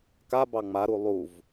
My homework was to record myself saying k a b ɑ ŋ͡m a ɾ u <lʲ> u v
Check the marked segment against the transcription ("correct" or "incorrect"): incorrect